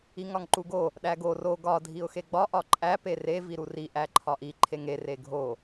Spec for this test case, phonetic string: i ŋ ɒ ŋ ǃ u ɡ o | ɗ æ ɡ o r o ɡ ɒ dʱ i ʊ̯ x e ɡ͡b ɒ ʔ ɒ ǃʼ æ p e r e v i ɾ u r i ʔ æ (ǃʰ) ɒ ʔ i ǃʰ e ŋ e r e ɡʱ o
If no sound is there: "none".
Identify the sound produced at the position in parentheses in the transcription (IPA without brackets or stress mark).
ǃʰ